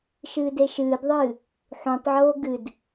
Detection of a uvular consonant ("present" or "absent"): absent